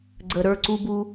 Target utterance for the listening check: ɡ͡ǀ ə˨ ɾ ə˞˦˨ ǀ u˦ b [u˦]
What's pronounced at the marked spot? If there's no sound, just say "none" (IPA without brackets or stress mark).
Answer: u˦